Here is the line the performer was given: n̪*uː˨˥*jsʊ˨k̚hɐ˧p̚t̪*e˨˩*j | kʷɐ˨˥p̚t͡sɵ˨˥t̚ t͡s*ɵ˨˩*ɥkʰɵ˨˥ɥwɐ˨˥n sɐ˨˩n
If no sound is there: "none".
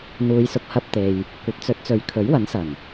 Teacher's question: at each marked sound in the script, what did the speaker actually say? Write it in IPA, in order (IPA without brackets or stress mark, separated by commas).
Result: uː˨˧, e˨, ɵ˨˧